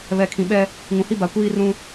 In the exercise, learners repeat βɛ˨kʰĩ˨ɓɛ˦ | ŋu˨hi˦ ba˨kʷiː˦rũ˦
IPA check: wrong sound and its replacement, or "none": u˨ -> ũ˨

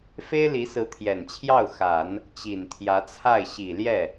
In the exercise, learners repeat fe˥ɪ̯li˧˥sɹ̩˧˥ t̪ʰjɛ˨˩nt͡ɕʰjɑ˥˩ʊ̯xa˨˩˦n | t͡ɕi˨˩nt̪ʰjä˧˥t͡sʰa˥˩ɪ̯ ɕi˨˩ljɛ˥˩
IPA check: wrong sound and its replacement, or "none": none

